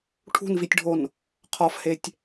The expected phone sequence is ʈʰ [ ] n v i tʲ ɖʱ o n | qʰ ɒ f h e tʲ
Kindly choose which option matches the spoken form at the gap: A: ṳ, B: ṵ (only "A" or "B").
A